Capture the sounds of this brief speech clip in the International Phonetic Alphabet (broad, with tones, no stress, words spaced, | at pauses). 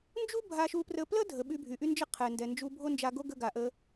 nd͡ʒu˥ bʱa˧ʃu˧prə˧ plə˥dʱə˩ ɓy˧bʱy˩ʔy˥nd͡ʒə˥ qʰɛ˩ndɛ˩nd͡ʒu˧ bʱo˥nd͡ʒa˧ɡo˥ ɡə˧ɡa˩ʔə˧